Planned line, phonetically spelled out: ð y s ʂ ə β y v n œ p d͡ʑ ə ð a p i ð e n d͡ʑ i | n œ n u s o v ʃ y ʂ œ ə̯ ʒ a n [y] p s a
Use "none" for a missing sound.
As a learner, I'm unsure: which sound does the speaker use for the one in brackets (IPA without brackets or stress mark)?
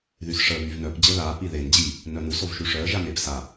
e